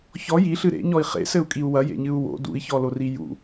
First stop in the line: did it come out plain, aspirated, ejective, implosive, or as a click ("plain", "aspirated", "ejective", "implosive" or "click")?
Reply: ejective